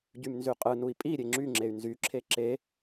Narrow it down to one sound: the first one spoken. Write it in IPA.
ɟ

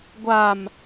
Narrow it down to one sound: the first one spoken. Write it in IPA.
ɡʷ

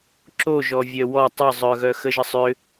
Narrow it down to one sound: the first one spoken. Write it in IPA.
ǁ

